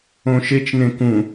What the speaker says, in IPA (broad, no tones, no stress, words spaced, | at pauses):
õʃet͡ʃ nẽkũ